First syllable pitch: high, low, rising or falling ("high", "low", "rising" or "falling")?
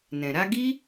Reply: low